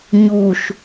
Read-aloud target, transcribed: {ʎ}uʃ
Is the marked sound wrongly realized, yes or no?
yes